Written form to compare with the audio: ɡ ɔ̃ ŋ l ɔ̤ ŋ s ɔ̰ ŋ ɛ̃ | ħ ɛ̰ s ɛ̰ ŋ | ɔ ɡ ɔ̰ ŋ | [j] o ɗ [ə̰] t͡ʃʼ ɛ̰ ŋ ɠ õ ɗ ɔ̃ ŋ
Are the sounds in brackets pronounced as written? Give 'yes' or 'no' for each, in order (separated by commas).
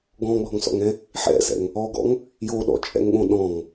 yes, no